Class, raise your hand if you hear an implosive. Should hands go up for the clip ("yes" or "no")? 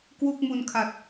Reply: no